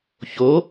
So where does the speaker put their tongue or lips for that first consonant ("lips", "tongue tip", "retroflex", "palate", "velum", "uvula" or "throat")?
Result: palate